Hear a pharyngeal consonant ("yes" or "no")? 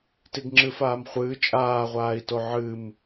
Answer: yes